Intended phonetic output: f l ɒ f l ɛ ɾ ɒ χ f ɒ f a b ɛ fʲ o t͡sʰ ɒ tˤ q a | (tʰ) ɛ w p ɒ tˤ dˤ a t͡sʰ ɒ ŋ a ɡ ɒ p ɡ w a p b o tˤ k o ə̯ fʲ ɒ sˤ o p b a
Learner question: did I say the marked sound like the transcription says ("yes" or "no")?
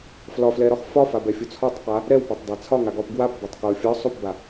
no